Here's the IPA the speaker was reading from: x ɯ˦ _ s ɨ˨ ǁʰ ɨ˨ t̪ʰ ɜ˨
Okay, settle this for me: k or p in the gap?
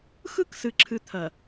k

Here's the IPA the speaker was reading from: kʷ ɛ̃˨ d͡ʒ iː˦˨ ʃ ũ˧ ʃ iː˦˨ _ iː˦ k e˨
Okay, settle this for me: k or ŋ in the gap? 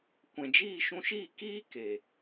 k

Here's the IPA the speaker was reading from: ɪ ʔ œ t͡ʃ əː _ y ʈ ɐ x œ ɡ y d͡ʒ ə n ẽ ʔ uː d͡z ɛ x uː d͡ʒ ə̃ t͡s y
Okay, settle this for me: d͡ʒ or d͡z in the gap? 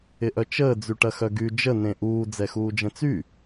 d͡z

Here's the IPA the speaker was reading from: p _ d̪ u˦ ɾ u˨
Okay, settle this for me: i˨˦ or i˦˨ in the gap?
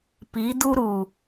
i˨˦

